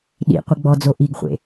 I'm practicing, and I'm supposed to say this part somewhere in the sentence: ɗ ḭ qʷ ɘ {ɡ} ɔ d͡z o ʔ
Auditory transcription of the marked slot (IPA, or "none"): ɡ͡b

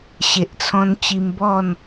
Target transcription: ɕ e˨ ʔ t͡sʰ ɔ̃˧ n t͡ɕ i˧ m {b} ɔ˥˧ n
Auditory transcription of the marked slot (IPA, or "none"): b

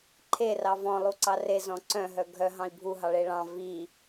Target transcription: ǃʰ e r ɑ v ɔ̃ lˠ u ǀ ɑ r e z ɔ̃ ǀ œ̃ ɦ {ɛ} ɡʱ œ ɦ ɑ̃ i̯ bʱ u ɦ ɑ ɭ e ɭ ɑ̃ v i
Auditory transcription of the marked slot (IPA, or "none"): œ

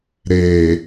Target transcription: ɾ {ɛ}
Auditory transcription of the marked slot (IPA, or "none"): e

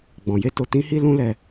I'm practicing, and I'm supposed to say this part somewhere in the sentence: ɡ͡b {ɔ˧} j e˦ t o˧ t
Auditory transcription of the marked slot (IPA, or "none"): ɔ̃˧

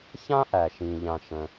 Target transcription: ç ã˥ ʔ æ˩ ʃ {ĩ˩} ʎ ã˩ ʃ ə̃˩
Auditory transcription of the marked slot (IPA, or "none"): ĩ˩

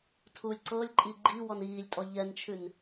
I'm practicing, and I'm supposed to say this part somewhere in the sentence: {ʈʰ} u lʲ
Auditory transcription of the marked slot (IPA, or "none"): tʰ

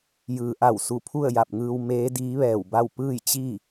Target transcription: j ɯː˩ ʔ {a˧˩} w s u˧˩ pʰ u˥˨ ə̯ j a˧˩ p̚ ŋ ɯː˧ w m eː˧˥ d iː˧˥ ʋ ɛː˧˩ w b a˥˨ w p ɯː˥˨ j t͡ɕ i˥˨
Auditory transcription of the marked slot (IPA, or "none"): a˧˩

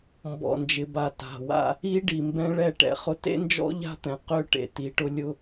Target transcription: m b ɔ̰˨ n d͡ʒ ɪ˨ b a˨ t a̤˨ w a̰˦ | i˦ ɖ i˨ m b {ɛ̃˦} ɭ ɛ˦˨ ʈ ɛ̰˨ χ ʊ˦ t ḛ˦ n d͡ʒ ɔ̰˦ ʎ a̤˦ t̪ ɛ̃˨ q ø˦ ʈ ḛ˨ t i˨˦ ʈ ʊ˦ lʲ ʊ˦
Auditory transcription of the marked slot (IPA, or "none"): ɛ̃˦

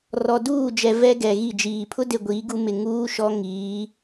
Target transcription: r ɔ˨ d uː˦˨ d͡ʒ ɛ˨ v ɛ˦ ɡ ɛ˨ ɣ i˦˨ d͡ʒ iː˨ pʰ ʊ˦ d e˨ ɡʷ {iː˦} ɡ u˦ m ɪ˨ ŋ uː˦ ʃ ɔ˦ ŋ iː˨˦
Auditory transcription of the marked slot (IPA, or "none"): iː˨˦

